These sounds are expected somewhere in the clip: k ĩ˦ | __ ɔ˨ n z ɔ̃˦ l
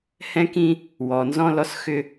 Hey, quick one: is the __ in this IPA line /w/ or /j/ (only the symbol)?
w